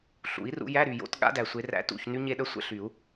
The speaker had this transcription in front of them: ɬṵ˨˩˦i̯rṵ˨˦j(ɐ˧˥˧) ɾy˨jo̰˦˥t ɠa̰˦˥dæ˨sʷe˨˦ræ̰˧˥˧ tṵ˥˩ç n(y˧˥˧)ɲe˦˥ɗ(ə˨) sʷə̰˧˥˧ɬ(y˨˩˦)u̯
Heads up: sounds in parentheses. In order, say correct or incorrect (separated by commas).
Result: incorrect, incorrect, incorrect, correct